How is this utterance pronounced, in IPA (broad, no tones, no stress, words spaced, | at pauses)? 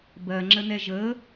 bɜŋ͡ǁənɛ ʒə